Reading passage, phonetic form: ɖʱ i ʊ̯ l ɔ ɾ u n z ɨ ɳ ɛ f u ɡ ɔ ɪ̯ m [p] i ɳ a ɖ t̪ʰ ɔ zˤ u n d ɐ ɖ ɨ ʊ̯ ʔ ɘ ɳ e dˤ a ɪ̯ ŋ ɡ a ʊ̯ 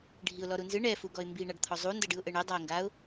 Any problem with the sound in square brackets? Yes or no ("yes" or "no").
yes